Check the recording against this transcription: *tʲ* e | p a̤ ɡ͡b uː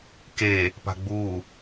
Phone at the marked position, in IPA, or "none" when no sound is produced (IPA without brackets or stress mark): k